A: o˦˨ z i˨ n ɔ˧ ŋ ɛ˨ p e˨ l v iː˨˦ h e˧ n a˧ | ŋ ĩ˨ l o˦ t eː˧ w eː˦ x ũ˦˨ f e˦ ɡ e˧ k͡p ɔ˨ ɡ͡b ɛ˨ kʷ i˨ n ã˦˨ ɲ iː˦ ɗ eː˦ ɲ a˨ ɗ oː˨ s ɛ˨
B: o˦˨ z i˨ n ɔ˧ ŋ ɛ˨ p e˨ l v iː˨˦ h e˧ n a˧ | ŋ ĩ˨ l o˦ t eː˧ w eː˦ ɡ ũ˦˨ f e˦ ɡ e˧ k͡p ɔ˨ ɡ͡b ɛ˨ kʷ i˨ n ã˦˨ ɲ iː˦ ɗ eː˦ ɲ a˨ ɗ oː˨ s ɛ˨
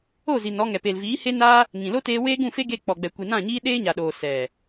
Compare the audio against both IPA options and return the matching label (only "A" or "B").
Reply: B